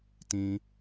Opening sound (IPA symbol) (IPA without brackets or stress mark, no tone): t